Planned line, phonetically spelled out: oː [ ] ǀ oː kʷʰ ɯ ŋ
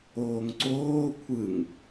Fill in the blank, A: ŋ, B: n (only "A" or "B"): A